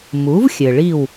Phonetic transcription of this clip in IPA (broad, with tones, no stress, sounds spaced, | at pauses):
m u˩˥ v xʲ ɘ˩ ɭ i˥˩ w